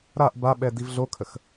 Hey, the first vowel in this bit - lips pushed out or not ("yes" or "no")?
no